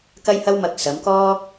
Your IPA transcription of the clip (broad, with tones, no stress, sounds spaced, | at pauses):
k ɐ˥ j h ɐ˥ w m ɐ˧ k̚ s ɐ˨˧ m k ɔː˥